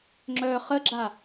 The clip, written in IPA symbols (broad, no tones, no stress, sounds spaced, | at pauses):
ŋ͡ǁ œ χ ə ɡ͡ǁ a